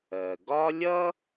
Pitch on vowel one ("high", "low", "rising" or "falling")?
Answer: low